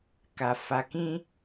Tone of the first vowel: low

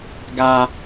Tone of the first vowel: high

